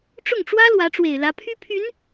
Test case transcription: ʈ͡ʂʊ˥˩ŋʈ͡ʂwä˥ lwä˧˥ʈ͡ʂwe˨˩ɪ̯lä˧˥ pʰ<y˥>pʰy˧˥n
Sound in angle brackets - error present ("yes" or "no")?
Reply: no